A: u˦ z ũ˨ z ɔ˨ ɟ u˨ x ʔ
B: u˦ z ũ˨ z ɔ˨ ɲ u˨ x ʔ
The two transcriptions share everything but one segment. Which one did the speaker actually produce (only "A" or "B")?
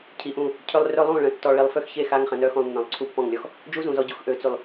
A